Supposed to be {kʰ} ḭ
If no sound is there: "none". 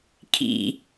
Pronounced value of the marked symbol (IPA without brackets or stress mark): kʰ